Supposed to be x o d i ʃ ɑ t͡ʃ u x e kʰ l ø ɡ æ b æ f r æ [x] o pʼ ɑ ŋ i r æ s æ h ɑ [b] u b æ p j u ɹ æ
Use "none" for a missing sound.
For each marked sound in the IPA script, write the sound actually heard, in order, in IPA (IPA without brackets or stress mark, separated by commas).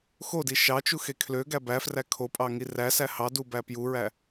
kʰ, d